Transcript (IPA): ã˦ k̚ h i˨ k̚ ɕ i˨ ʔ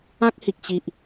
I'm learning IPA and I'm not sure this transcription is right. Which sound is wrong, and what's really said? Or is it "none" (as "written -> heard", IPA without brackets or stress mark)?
none